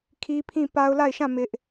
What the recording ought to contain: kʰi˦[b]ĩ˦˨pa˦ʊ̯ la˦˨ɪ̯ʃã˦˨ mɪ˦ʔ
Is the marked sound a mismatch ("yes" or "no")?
yes